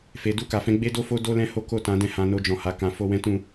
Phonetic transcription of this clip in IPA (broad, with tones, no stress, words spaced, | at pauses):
fe˨du˧ka˨fɛ̃˨˦ ɡ͡be˦do˦fo˦ do˦lɛ̃˦ ho˦ko˦˨tã˨˦dɛ̃˦˨ hã˧ no˧d͡ʒɔ̃˨ha˨ kã˨fo˧ wɛ̃˦tũ˦˨